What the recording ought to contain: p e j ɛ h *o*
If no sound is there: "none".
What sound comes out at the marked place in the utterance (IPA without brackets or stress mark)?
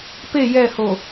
o